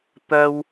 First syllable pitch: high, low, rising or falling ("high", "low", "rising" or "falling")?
high